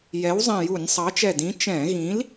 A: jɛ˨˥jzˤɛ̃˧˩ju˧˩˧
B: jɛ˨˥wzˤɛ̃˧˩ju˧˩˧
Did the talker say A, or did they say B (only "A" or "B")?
B